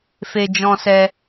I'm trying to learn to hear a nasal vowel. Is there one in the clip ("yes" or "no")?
yes